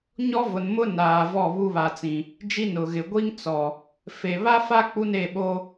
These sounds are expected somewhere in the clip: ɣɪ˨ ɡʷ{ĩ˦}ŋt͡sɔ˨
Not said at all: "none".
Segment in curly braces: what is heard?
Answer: i˦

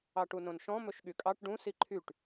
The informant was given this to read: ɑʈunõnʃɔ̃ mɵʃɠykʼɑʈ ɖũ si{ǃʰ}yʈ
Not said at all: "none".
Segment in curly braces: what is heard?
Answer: ǃʰ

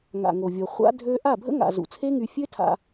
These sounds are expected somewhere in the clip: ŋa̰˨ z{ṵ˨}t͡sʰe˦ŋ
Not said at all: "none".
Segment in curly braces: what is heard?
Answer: ṵ˨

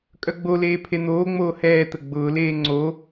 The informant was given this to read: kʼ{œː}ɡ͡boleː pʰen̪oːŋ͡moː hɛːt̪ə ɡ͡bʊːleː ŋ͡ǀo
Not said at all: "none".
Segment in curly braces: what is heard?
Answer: œ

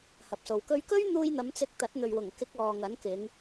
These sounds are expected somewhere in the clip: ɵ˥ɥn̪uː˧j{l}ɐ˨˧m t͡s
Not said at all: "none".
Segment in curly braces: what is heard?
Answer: n̪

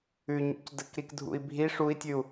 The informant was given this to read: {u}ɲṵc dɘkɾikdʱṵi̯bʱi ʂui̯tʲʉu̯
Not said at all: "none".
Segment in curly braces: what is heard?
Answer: ʉ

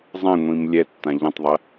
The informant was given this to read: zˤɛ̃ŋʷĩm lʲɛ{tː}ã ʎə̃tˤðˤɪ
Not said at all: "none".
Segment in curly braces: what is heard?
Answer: tː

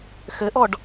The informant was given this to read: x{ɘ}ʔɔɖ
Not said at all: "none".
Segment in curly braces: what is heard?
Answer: ɘ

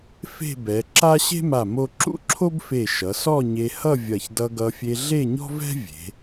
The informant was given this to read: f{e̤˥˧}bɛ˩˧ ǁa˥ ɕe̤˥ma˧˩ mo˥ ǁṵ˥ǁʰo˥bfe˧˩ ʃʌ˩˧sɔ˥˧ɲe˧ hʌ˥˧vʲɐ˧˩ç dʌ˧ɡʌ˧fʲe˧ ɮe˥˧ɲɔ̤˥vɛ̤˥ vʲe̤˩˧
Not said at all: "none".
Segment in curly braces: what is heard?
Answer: e̤˥˧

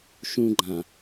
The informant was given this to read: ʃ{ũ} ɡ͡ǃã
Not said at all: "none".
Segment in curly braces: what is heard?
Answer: ũ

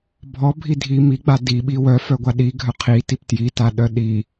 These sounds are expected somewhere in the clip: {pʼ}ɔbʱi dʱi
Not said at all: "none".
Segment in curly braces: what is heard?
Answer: bʱ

